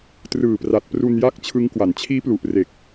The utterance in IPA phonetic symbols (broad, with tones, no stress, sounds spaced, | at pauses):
t r ɯː˨˩ p r a˨˩ t̚ p r u˧ n j a˦˥ k̚ t͡ɕʰ ɯ˦˥ ŋ k w a˩˦ n t͡ɕʰ iː˦˥ p l u˨˩ ʔ r e˨˩ k̚